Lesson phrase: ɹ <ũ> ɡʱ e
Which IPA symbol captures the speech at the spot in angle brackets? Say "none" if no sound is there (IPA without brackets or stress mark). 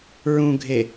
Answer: ũ